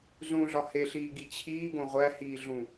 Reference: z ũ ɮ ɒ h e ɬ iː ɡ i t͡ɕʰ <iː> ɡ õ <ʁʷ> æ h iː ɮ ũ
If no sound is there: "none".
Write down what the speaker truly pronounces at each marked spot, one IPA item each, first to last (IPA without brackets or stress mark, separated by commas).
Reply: iː, ʁʷ